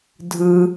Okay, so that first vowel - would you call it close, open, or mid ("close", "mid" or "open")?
close